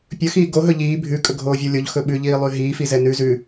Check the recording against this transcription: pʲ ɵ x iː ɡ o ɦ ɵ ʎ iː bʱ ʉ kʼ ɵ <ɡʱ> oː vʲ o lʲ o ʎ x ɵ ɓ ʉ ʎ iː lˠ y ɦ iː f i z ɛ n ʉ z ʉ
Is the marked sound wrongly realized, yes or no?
no